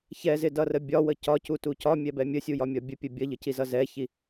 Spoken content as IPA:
ç ɛ z ɪ d ʌ r ə bʲ ɒ w ə c ɒ c u t u c ɒ mʲ ɛ b ɛ mʲ ə sʲ u j ɒ mʲ ɒ bʲ ə pʲ ə bʲ ʌ ʎ ə c i z ʌ z ɛ ç i

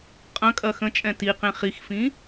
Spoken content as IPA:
qʼ ɐ̃ kʼ ɐ x ə̃ t͡ʃʼ ɛ̃ t i q ẽ χ i x f ĩ

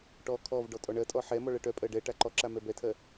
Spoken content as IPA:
ʈ ɔ kʰ ɔ v ɖ ɔ tʼ ɔ ɳ ɜ tʼ ɔ ħ ɛ m ɔ ɭ ɜ ʈ œ pʼ ɜ ɖ ɛ ʈ a ǃ ɔ ǁ a m ɛ b ɛ tʰ ɜ

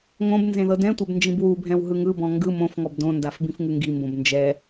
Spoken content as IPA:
ŋ õ b n z ẽ ð ɤ d ɛ̃ tʷ ɛ b n d͡ʒ ĩ b w u bʱ ɛ̃ w ɦ ɯ ŋ ɯ b ɔ̃ ŋ ɡ ɯ m õ f ŋ ɔ b d õ n d a f b ĩ f ŋ ɯ ŋ ɡ i m b õ b n d͡ʒ ɛ

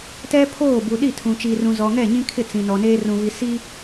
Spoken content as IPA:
t ɛ˦ pʰ oː˦˨ b u˨ ɗ i˦˨ tʰ ũ˨ t͡ʃ i˨ r ũ˨ z ɔ˨ ŋ ɛ˦˨ ɲ ĩ˦ kʰ ɪ˦˨ t͡s ĩ˨ n ɔ˨ n eː˦ r ũ˨ β i˨ s i˦

